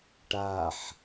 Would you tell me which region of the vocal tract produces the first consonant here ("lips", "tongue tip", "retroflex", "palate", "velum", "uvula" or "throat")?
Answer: retroflex